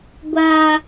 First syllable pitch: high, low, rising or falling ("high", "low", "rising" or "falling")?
high